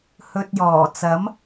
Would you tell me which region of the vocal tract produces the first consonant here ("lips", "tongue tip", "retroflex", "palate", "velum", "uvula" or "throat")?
throat